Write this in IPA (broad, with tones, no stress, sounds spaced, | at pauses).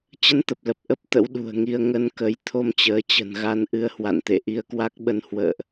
t͡ɕ ə˧ n t̪ ə˨˩ p̚ l ə˨˩ p̚ ʔ ə˦˥ p̚ t̪ ə̰˧˥ w ɗ ṳ˨˩ ə̯ ŋ i˧ ə̯ ŋ ə˧ n k ə˨˦ j t̪ʰ o˧ m t͡ɕ əː˨˦ t͡ɕ ə̤˨˩ n ɣ a˧ n ʔ ɨ˧ ə̯ h w a̰˧˨ n t̪ ḛ˧˨ ʔ i˧ ə̯ k w a˦˥ k̚ ɓ ə˧ n h w ə̰ː˧˨ ʔ